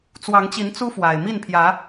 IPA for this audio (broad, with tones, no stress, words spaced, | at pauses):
t͡swɑ˨˦ŋt͡ɕi˨˦n t͡su˦fwa˨˩ɪ̯ mi˥˨npʰjä˨˦